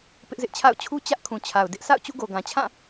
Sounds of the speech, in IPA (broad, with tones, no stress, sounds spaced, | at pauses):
p ɪ˦ ʔ z ɪ˦ ʔ t͡ɕʰ a̰˦˨ ʊ̯ t͡ɕʰ u˦ t͡ɕ ä˦ ʔ kʰ ũ˨ t͡ɕʰ a˨ ʊ̯ d ɪ˦ ʔ sʰ a̰˦˨ ʊ̯ t͡ɕ ṵ˦˨ ɡ o˨ ɡ ã˨ t͡ɕʰ ã˦˨